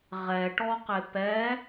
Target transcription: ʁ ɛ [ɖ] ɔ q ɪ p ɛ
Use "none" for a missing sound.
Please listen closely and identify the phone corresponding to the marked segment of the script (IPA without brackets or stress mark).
ʈ